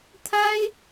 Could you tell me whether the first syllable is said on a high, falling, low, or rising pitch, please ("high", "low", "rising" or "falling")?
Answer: high